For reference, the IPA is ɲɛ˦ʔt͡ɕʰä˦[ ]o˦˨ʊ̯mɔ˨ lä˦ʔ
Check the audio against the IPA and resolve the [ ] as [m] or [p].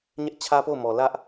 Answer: p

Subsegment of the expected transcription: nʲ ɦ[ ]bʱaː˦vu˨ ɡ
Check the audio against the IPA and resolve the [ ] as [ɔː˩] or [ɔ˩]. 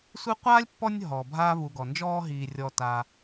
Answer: ɔː˩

